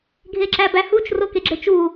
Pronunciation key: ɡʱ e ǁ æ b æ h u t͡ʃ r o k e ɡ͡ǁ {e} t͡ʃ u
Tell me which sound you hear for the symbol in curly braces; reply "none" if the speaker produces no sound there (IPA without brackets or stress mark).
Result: e